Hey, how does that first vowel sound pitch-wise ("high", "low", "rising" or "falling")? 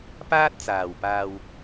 high